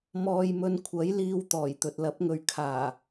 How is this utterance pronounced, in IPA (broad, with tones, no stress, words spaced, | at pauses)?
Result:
mɔː˧jmɵ˧n kʷʰɐ˨˥jliː˧w t̪ɔː˨˩jt̪ɵ˨t̚lɐ˨˥p̚ŋɵ˧ɥ kʰaː˨˩